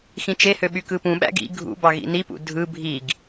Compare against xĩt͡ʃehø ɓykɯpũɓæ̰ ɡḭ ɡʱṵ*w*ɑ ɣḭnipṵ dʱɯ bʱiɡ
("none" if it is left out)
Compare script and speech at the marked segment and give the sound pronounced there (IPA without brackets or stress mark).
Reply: b